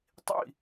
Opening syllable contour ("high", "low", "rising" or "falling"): falling